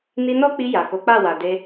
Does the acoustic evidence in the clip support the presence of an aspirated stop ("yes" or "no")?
no